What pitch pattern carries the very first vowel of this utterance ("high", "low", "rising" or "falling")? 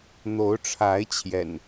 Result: rising